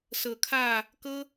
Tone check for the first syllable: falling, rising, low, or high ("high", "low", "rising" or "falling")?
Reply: low